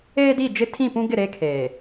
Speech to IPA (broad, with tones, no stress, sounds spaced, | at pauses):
eː˦ d i˦˨ d͡ʒ ɪ˦ tʰ ĩ˦˨ p ũ˦ ɡ ɪ˦˨ ɾ e˦ kʰ eː˨